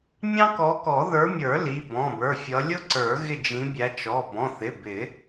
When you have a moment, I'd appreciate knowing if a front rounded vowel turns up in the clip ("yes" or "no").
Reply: no